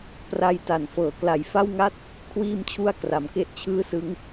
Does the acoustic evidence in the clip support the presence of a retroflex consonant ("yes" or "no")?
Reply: no